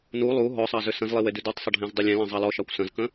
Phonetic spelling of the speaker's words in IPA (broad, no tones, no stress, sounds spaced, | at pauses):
n u lˠ u ɦ ɔ sˤ ɑ z ʏ s ə̃ z lˠ i w e d ʉ d u tˤ sˤ ə ɖʱ ẽ z dˤ ʏ lʲ ẽ l ə̃ zˤ ɑ l ɔ ʃ ɑ kʷ s ə̃ z k ə̃